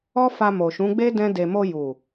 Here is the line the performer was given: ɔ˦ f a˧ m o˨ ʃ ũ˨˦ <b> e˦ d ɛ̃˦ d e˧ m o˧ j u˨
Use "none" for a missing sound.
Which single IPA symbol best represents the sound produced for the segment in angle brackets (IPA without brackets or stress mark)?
ɡ͡b